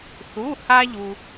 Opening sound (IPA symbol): θ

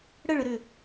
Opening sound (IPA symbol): ɽ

